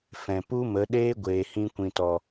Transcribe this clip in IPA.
f ɛ̃˨ p u˦ m ə˨˦ ɗ eː˦ ɡʷ eː˨ h ĩ˧ kʷ ĩ˨ t ɔ˨

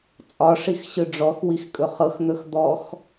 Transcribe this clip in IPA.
t͡sʼ ɒ ʂ i x ɕ ɯ ɖ͡ʐ ɔ x w i x kʼ ɵ χ ɤ x n̪ ɵ x d̪ ɔ x

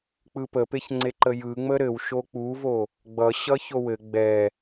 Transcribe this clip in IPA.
k͡p ɯ p ə p e ç ŋ͡ǀ e ǃ ə j ɯ ŋ͡m ə ɾ ɘ w ʃ o k͡p u v o | ɡ͡b ʌ ɕ ʌ ç o w ɘ ɡ͡b ɛ

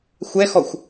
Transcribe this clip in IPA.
xʷ ɛ x ɔ xʷ

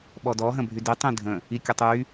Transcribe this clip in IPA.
ɓ ɔ d ɔ ɦ ə̃ bʱ y d i tˤ ĩ dʱ ə̃ | i kʲ ə tˤ y

